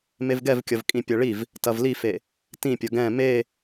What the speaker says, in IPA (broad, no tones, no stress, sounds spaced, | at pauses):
m e v ɡ ɛ v kʲ ɐ v kʼ ĩ pʲ ɐ ɭ i v | t ɐ v l i f e | t ĩ pʲ ɐ ɡ ɛ̃ m e